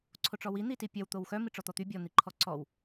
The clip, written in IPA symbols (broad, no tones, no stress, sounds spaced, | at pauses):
ǀʰ o ʈ͡ʂ ɔ w i n̪ i t i pʲ ɐ w t̪ o w x œ m i ʈ͡ʂ ɔ t̪ ɔ t̪ y bʲ ɔ n̪ i ǃʰ ɔ ǀ ɔ w